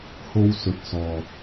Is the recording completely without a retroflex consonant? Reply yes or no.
yes